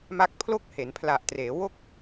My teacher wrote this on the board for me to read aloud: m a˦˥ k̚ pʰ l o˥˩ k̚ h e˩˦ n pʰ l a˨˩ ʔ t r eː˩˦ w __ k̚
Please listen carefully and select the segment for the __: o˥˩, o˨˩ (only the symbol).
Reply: o˥˩